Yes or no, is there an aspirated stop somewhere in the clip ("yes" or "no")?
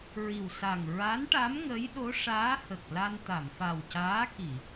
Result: no